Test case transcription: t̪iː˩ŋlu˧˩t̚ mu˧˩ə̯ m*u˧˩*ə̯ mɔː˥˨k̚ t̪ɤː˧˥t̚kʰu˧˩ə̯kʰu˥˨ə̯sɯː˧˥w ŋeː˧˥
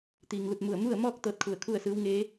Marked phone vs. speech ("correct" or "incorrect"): incorrect